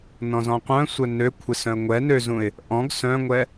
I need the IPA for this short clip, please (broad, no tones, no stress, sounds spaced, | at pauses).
n ɔ̃ z ɔ̃ qʷ œ̃ sʷ œ n ø kʷʰ ɪ s œ̃ ə̯ ŋʷ ɛ n ø z ũ ɪ̯ | ʔ ɔ̃ ɡ s œ̃ ŋʷ ɛ